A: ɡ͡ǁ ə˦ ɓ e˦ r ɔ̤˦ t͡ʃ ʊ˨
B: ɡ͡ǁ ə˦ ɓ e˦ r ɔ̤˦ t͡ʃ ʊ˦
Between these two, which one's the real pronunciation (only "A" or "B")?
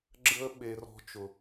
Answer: A